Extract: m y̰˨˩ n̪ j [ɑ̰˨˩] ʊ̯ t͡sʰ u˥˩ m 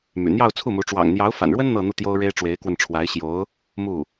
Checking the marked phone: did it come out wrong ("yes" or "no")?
yes